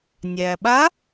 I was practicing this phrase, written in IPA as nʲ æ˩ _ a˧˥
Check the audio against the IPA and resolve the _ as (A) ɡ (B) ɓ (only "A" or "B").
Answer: B